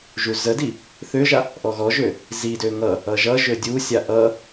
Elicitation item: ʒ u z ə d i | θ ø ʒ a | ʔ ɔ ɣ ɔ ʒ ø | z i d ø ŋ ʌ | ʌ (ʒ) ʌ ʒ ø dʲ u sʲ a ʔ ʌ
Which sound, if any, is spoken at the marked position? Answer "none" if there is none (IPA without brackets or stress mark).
ʒ